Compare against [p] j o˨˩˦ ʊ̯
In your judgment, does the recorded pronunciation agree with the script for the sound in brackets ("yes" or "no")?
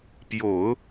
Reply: yes